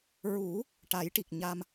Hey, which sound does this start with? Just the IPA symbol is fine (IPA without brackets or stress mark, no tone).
ɹ